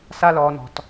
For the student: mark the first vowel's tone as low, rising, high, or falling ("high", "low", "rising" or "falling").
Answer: low